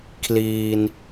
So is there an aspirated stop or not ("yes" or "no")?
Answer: yes